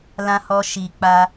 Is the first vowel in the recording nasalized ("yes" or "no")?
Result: yes